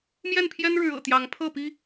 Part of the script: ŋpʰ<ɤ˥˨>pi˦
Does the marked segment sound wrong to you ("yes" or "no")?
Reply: no